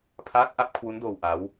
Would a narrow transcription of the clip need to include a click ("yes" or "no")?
no